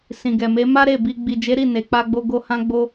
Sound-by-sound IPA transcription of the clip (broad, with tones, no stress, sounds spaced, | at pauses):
s ĩ˨ ɡ ɛ˨ m e˨˦ m a˦ ɾ e˦˨ b i˧ ɡ͡b i˨ d͡ʒ e˨˦ ɾ i˦˨ n e˨ k͡p a˧ ɡ͡b o˧ ɡ o˦ h ã˦ ɡ͡b o˦